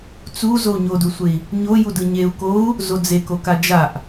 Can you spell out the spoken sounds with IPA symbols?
t͡s u z o u̯ ɲ o d u sʷ e i̯ | ɲ o j u d ɯ ɲ e u̯ k o u̯ | z o d͡z e k o k a d͡ʒ a ʔ

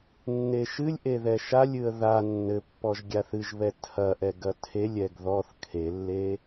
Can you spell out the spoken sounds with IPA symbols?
nː e ʃ ɨ lʲ ʔ e ð ɛ ʃ a lʲ ɨ ə̯ ð a nː ɘ pː ɔ ʒ ɡʲ a θ ɨ ʒ β ɛ tʰ ɐ ʔ ɛ ɡ ɐ tʰ e lʲ ɛ ɡ ð ɔ θ kʰ e lː e

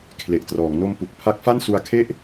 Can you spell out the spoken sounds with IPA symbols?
kʰ l e˨˩ ʔ t r ɔː˩˦ ŋ n o˧ m p u˨˩ k̚ pʰ a˦˥ k̚ f a˥˩ n s u˧ a̯ kʰ e˥˩ ʔ

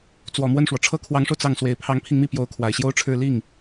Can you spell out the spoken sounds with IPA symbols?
t͡s w ɔ˨˩ m w ə˥˩ n ʂ w ɔ˩ ʈ͡ʂʰ ɤ˥ kʰ w ɑ˧˥ ŋ ʂ o˧ ʊ̯ t͡s ɑ˥˩ ŋ s w e˨˩ ɪ̯ pʰ ɑ˧˥ ŋ pʰ i˧ ŋ m i˥˩ p j o˧˥ ʊ̯ kʰ w a˨˩ ɪ̯ ɕ j o˥ ʊ̯ ʈ͡ʂʰ ɻ̩˥˧ l i˥˩ ŋ

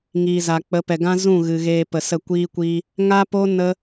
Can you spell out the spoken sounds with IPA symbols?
ŋ iː˨ z a˨ k͡p ə˨˦ p ɛ˨ ɡ ã˦ z ũ˦˨ ɣ ɨ˨ ɣ eː˧ p ə˨ s ə˦˨ kʷ iː˦ kʷ iː˦ | ŋ a˦ p o˦ n ə˦

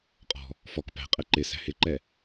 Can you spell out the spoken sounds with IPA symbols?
qʼ ɔ̤ | f ɔ k p æ̤ qʼ ɛ ǃ ɪ s æ̤ h ɪ ǃ ɛ

